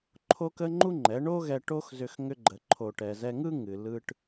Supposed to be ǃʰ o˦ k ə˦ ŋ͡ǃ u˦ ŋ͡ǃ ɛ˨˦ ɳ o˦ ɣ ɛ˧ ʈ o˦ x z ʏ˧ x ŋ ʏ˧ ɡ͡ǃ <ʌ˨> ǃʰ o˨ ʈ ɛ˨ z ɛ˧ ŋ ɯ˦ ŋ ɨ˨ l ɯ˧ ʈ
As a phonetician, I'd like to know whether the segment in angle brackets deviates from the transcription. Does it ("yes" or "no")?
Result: yes